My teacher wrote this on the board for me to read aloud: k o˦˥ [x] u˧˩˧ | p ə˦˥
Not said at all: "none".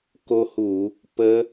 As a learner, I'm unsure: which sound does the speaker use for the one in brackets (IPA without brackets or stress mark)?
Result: h